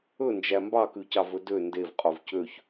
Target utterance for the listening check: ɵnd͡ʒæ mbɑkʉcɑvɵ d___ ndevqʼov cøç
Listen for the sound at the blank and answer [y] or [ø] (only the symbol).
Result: ø